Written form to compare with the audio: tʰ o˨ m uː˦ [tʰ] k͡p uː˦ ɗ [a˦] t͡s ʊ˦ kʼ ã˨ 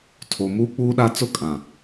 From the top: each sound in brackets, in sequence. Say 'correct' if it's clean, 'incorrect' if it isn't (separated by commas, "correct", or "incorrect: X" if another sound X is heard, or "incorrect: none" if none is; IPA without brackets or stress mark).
incorrect: none, correct